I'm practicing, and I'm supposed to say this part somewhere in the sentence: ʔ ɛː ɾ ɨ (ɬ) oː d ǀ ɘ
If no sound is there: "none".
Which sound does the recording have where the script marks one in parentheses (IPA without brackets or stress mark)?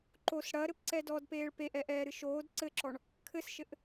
ʃ